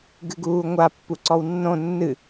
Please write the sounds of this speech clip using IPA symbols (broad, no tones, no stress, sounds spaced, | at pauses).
ɡ ɨ ɡ uː ŋʷ a pː u ǀ ɔ w nː õ nː ɨ